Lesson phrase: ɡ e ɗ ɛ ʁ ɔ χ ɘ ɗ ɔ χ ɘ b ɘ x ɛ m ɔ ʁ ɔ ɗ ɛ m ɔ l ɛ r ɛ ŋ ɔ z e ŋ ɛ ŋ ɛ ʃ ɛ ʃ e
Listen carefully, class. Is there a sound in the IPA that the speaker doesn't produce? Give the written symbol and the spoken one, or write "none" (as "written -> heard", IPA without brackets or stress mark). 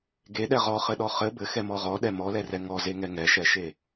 none